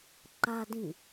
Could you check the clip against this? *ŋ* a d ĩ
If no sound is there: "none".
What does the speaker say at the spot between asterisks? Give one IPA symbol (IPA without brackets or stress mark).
ǃ